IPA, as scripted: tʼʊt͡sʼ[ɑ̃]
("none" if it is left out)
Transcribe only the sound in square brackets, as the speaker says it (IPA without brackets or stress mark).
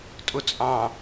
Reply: ɑ̃